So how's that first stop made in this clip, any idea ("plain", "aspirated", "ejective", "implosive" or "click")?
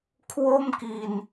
aspirated